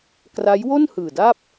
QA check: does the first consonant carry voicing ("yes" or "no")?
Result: no